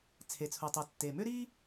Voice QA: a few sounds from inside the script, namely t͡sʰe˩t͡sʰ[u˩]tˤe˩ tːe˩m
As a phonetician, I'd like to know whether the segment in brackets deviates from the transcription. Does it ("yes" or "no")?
no